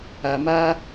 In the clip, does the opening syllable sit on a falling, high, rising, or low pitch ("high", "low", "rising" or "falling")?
low